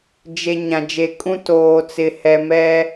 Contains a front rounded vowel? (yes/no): no